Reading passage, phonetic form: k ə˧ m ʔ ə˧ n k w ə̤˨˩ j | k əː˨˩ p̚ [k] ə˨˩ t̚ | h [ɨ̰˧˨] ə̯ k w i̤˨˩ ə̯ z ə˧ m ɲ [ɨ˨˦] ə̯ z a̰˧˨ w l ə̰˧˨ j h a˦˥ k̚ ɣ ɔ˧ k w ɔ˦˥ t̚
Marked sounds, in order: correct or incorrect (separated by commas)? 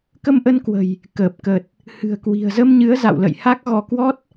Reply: correct, incorrect, correct